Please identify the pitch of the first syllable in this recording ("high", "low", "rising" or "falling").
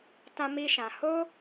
high